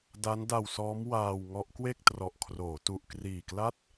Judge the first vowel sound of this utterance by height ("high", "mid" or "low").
low